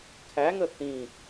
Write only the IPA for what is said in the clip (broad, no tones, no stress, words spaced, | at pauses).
kʰæŋə θĩ